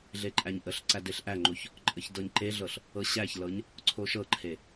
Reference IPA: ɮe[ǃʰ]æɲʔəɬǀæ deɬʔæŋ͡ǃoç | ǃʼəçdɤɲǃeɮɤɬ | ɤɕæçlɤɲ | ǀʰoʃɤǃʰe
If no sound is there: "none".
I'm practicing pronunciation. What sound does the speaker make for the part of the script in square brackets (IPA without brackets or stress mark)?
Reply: ǃʼ